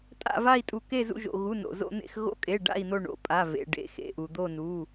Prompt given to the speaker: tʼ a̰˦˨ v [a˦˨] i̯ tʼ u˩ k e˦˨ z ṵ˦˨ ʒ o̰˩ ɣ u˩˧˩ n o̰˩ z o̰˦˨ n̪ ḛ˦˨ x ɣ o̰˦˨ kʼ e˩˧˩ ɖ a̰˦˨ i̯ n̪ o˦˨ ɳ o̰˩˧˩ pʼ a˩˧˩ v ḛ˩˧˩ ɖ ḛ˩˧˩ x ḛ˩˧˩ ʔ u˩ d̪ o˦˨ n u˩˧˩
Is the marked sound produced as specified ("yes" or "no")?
yes